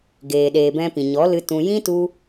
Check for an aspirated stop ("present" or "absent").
absent